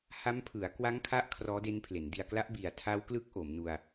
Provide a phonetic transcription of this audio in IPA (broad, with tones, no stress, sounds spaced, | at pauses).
h a˦˥ m pʰ ɯ˩˦ a̯ k w a˦˥ ŋ kʰ a˦˥ ʔ kʰ r ɔː˦˥ d e˦˥ n pʰ l e˩˦ n d i˧ a̯ k l a˦˥ ʔ b i˨˩ a̯ tʰ a˦˥ w k l ɯ˦˥ k̚ ʔ o˩˦ m n u˧ a̯